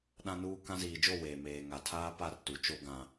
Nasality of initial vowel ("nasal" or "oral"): nasal